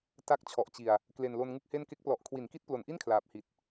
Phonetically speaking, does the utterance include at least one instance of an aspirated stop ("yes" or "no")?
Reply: yes